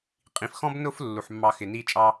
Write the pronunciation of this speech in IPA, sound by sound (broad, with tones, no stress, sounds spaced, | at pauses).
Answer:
qʼ ĩ˨ f x ɔ̃˦ b n ʊ˦ f lː u˨ ħ mː ɑ˧ x ɪ˨ n i˧ t͡ʃʼ ɑ˧